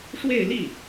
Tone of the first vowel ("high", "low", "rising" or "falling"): falling